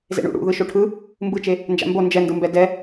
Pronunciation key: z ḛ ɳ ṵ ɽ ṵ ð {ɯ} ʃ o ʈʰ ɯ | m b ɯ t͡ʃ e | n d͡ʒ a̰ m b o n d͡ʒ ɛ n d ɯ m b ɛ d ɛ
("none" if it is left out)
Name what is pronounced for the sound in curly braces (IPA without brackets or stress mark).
ɯ